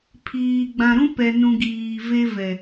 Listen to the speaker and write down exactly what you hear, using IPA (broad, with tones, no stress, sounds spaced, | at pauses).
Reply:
pʰ iː˨ ɡ͡b ã˨ ɾ ũ˦ p ɛ˨ n ũ˨ ɡ iː˨ v e˦ v ɛ˨